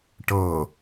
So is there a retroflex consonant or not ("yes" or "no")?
yes